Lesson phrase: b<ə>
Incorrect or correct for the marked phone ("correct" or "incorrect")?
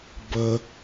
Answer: correct